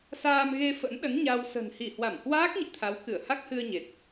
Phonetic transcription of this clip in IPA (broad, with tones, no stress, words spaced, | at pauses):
saː˧mɣe˧fə̰˧˥nɗə˨˦n ɲa˧w sə̤˨˩nhi˧˩hwa˧˩m hwaː˦˥k̚ɲḭ˧˨ t̪ʰa˨˦wkɨ˧˩ə̯ ha˦˥k̚hɨ˧ə̯ɲe˨˩t̚